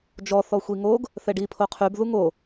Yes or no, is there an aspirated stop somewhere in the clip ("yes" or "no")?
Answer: yes